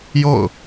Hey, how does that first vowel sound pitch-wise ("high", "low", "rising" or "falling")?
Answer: falling